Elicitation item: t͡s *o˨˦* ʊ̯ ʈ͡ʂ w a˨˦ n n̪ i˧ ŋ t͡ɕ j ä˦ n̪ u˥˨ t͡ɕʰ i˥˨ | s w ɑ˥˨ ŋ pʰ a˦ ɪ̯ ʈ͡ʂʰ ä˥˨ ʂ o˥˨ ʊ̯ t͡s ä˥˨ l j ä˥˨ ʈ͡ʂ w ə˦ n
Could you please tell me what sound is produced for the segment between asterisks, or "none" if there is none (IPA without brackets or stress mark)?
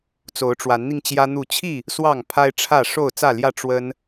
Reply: o˨˦